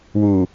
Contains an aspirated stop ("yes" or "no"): no